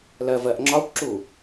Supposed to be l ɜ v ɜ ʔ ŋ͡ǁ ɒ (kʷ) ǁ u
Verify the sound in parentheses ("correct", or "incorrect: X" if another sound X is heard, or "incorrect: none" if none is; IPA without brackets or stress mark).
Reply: correct